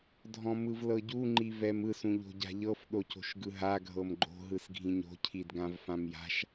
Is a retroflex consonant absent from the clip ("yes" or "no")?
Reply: yes